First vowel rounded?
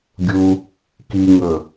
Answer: yes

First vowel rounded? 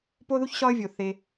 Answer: yes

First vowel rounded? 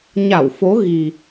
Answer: no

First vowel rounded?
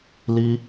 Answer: no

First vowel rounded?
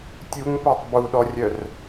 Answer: yes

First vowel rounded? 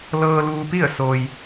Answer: no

